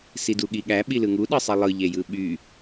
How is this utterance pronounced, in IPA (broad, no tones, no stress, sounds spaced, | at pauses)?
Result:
s i d u ɠ i ɠ æ ɓ i l ɯ ŋ u ɗ ɯ sˤ e lˠ ɯ ʎ e j ɯ ɓ y